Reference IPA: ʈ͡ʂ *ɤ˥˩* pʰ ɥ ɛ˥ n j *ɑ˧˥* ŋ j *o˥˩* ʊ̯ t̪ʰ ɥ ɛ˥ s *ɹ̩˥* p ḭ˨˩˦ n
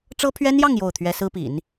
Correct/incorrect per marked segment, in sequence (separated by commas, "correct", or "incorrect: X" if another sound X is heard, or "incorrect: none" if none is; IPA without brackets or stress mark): incorrect: ɤ˥, incorrect: ɑ˥˧, correct, correct